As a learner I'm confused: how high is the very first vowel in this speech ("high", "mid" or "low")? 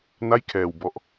low